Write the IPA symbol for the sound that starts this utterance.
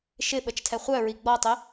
ʃ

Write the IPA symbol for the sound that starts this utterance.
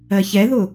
ɜ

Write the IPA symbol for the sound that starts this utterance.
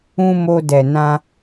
ũ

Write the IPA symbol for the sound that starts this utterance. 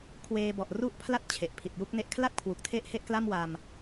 kʰ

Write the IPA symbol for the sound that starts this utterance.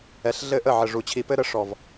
ɛ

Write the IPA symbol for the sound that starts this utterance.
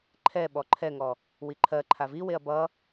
ǃʰ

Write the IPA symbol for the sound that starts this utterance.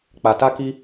k͡p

